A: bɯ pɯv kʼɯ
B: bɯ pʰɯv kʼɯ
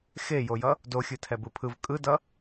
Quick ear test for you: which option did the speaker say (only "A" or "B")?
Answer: B